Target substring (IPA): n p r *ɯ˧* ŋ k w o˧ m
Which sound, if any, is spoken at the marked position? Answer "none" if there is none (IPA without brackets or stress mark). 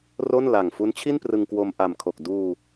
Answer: ɯ˧